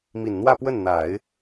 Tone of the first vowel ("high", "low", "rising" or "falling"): low